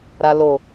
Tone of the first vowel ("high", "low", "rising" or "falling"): low